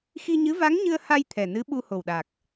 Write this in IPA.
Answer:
x i˧ ɲ ɨ˧˥ v a˧˥ ŋ ɲ ɨ˧ ə̯ h a˧ j t̪ʰ ɛ˨˩ n ɨ˧˥ ɓ u˧ h o˨˩ w ɗ a˨˩ k̚

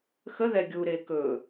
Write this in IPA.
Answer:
x ə ð ɛ ɡʲ u ɾ e k ɵ

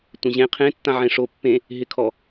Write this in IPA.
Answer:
tʷ ẽ ʑ ẽ qʰ ẽ tː ã ʕ ẽ ʂ o pː ẽ | ɦ ɪ kʰ ɔ

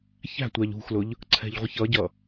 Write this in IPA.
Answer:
ç æ̤ tʷ æ ʎ ṳ x l ʊ ʎ | ǀʰ ɛ̤ ʎ ʁʷ ɪ ç ʌ ɟ ʌ

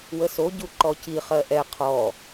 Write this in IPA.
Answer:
w ə s o ɟ u ǃ ɔ c i χ ɜ ʔ ɛ qʰ ɔ

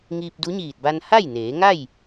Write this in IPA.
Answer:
ŋ iː˧ p̚ d u˧˥ ɲ iː˧˩ t̚ b a˧ n h a˥˨ j n eː˩˧ ŋ a˥˨ j

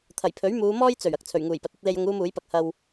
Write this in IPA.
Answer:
t̪ʰ ɐ˨˩ j pʰ ɵ˨˥ ɥ m uː˨˧ m ɔː˥ j t͡s ɵ˨˩ ɥ ɐ˧ k̚ t͡sʰ ɵ˨˩ ɥ ŋ uː˨˩ j p ɐ˨ t̚ ɐ˨˥ t̚ l e˧ j ʊ˧ ŋ uː˥ m uː˨˥ j p ɐ˧ k̚ h ɐ˧ w

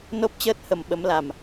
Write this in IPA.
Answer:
n o˦˥ p̚ t͡ɕ əː˦˥ t̚ h ə˨˩ m ɓ ə˨˦ m l a˨˩ m

